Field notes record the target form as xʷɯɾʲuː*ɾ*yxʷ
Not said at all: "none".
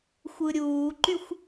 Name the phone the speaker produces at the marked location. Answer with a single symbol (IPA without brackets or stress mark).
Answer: ǃ